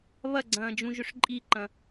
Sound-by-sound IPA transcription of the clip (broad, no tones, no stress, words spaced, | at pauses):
βɐɡ͡ǀɐ̃ːd͡ʒũʒʏʂ ǃʼiǃɐ̃